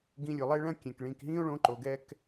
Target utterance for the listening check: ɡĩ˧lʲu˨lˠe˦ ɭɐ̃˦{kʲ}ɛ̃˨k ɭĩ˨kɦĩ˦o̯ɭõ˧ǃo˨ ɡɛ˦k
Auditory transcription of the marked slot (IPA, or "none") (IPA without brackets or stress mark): kʲ